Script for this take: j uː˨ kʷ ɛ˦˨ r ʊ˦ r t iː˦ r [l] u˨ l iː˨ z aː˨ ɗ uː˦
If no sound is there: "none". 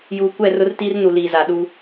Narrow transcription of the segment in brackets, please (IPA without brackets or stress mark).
n